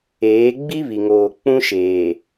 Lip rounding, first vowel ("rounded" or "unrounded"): unrounded